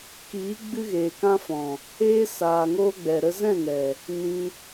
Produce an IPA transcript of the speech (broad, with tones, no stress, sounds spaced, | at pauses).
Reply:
k iː˨˦ ɡ͡b ɨ˧ ɣ eː˨ k ã˧ f ɔ̃˨ | eː˧ s aː˨ ŋ oː˧ ɡ͡b ɛ˨ ɾ ə˧ z ɛ̃˦˨ ŋ ɛ˨ | n ĩ˧